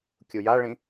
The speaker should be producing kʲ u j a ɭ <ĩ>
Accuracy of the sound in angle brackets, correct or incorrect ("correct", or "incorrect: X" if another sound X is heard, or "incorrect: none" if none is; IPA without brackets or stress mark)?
correct